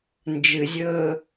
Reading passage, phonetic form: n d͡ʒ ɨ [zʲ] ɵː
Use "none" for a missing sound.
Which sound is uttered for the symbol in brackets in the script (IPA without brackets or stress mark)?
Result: zʲ